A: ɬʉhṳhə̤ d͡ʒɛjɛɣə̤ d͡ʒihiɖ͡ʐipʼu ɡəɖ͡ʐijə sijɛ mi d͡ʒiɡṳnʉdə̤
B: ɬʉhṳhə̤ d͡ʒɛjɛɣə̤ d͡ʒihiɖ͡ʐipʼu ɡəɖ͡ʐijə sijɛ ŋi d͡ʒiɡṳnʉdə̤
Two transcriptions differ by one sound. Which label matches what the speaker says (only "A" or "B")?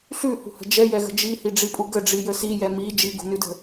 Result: A